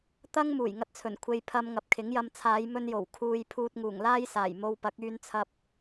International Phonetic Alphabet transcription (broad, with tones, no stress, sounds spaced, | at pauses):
t̪ ɐ˥ ŋ m uː˨˩ j ŋ ɐ˧ t̚ t͡sʰ ɵ˨˩ n kʷʰ e˧ j pʰ ɐ˧ m ŋ ɐ˨ p̚ kʰ ɪ˨˥ ŋ j ɐ˧ m t͡sʰ aː˨˧ j m ɵ˧ n j o˨˩ w kʰ uː˨ j pʰ uː˧ t̚ ŋ uː˨˩ ŋ l aː˥ j s aː˨˩ j m o˧ w p ɐ˨˥ k̚ yː˧ n t͡sʰ ɐ˧ p̚